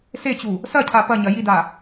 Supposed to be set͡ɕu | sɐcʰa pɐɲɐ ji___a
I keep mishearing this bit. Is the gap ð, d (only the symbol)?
d